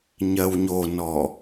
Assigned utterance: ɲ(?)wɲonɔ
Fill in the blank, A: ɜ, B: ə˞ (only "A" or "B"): A